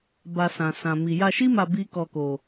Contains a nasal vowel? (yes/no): yes